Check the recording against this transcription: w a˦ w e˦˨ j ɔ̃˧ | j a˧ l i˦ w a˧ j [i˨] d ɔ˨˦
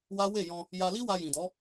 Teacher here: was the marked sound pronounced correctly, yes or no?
no